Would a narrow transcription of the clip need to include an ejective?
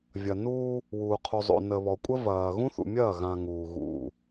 yes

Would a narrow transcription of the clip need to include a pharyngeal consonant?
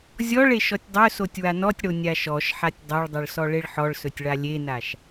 yes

